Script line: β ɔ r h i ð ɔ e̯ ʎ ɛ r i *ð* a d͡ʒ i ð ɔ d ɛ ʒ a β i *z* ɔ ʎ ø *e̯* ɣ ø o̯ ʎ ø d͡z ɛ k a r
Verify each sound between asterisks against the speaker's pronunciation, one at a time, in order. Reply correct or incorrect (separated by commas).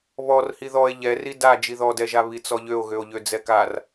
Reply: incorrect, incorrect, incorrect